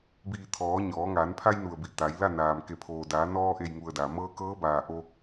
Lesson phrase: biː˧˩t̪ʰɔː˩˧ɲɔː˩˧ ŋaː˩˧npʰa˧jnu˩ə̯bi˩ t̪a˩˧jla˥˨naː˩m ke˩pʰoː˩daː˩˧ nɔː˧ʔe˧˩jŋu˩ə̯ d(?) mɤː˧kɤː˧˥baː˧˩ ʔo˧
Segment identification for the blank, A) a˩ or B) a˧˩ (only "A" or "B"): A